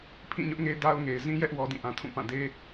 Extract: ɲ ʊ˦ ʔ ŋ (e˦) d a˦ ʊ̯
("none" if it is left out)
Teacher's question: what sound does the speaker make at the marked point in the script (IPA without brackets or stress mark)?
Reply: e˦